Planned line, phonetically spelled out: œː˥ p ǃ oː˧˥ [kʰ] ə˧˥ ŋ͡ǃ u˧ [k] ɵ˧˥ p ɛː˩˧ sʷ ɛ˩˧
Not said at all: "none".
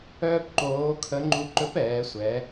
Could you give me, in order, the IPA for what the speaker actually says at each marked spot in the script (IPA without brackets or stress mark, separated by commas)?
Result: kʰ, ǃ